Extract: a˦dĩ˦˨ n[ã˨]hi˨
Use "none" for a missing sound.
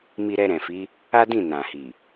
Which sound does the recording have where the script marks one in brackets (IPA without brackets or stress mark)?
ã˨